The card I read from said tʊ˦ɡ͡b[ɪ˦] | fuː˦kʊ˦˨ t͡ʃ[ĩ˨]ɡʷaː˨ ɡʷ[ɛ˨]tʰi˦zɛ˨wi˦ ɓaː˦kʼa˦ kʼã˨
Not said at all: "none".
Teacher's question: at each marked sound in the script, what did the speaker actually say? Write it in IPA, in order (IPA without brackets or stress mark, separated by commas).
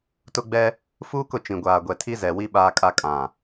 ɛ˦, ĩ˨, ɛ˨